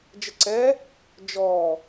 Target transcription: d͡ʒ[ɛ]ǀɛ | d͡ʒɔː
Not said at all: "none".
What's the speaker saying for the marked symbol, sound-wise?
ə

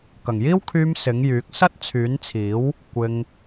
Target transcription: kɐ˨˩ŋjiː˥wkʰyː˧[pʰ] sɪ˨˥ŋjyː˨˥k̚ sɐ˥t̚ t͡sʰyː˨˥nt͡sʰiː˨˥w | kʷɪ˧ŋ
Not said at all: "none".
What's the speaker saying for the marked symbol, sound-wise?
m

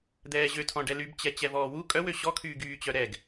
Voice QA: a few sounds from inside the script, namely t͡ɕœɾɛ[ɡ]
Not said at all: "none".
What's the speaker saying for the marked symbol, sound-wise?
ɡ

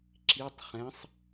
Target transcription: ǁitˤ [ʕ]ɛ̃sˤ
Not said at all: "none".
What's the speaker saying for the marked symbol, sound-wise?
χ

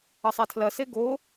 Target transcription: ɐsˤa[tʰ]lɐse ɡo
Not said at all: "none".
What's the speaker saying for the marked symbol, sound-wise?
tʰ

